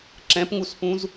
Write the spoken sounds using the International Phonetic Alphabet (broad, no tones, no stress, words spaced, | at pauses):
ǁɛ̃pŋuspũz